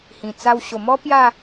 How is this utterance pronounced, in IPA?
hĩ˨˩t͡sa˧w ɕo˨˩mɔ˦ pja˥˧

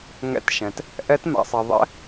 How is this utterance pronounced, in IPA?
ŋɛ̰˦˥tʃɛ̃˧t | ʔɛ˦˥tma̰˧sˤɛ˧ ðˤɛ̰˦˥

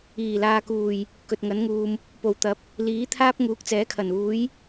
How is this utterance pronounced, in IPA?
iː˨˩laː˨kuː˨˩j | kɵ˨t̚ŋɐ˨˥nŋuː˨m | po˨˩wt̪ɐ˨˥p̚ | liː˨˥t̪ʰaː˥p̚ ŋuː˨˥k̚t͡sɛː˨˥kʰɐ˨˩nuː˨˥j

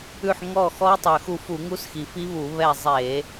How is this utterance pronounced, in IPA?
ʉ˦˨ħŋɔ˦˨ xɔ˦˥tˤø˨˩xu˦˨fu˧˩˧ ŋu˦˥sxi˨˩fi˦˥βu˧˩˧ βɛ˦˨ zˤe˧˩˧

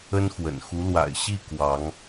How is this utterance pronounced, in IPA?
ə˦nxwə̰˨˩n xu˨˦lwa̰˨˩ɪ̯ ɕi˥˨ kwɑ˨˦ŋ

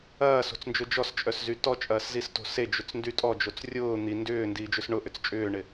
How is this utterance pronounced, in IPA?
ɐːso̤t͡snd͡ʒʊ d͡ʒɔst͡ʃʼœszy tɔt͡ʃʼɐːszisto̤ sed͡ʒʏt͡sndy tʼɔd͡ʒot͡s rʲʊː n̪i ndʏːndiːd͡ʒʏs ɳʊʔʏt͡s t͡ʃʼʏːɳɪ

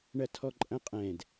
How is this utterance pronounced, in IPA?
ɳɐtʰɔǃʼɐ̃qʼɛ̃d

